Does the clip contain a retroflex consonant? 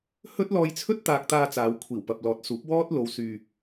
no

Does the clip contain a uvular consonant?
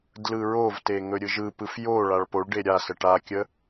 no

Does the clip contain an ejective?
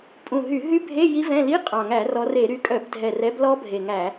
yes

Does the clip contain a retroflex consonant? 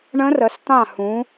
yes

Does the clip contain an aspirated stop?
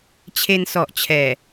yes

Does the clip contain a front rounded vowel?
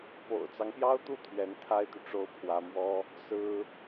yes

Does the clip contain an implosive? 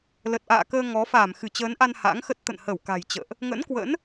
no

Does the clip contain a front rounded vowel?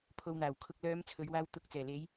yes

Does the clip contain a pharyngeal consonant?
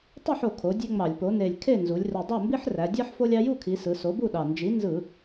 yes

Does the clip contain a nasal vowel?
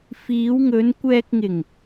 no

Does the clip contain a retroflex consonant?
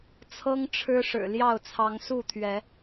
yes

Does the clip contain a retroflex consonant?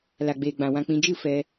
no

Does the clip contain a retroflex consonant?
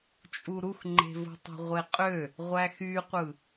no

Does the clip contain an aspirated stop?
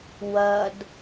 no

